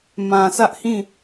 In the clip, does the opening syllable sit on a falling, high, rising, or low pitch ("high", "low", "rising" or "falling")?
low